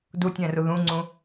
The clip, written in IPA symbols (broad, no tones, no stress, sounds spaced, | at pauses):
d u tʲ ɛ̃ r u ð ũ ŋ͡ǀ ũ